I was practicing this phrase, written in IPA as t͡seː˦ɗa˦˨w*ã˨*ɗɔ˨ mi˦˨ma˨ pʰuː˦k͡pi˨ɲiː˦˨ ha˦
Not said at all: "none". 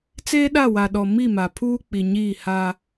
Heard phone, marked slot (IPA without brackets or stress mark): a˨